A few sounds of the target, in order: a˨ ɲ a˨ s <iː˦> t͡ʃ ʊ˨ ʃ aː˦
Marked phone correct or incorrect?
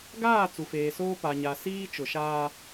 correct